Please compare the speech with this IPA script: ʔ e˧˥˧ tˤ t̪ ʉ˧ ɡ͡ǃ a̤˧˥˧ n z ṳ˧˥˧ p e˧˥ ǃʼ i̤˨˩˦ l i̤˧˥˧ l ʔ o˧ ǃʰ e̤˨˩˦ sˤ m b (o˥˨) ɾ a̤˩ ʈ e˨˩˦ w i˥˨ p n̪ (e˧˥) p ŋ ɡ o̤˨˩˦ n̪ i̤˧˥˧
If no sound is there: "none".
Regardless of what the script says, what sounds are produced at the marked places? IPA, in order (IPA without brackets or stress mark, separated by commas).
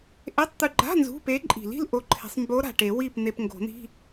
o˧˥, e˧